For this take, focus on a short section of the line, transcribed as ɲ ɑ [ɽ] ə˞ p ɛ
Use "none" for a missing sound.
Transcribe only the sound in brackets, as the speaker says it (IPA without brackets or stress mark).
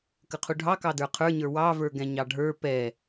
ɖʱ